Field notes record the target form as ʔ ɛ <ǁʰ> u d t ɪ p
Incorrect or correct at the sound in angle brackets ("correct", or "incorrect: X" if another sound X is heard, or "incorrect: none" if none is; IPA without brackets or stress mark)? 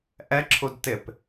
correct